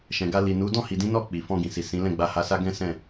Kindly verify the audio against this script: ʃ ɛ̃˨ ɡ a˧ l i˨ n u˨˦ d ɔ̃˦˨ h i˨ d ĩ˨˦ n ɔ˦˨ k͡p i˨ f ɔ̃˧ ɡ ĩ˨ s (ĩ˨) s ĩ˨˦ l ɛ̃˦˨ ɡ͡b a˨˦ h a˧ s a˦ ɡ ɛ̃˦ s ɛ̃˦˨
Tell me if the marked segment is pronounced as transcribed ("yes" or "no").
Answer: no